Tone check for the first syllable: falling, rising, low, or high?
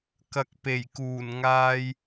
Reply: low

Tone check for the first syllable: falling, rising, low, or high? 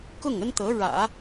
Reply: falling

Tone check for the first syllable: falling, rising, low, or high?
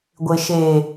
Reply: low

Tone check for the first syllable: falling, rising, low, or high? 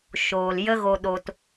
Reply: low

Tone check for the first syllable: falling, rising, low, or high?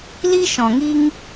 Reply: high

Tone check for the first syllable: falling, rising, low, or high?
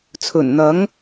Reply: low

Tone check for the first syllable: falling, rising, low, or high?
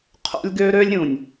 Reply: high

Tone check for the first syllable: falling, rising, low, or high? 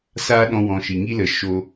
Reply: high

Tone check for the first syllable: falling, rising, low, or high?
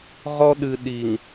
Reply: high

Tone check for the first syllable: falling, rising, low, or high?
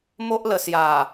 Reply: high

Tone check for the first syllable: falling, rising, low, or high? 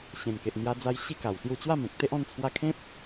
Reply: low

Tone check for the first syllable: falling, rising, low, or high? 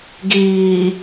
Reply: low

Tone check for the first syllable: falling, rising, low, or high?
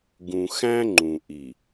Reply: low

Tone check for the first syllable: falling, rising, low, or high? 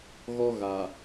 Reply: high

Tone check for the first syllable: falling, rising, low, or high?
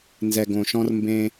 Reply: low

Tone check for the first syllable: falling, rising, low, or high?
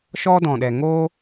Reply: high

